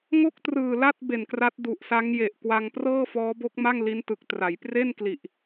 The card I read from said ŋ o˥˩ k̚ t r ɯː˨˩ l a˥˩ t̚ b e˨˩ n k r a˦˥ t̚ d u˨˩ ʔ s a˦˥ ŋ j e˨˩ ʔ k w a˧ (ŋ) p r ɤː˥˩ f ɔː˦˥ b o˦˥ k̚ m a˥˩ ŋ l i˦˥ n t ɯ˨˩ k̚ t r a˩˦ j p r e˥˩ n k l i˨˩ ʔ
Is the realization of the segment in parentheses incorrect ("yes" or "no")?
no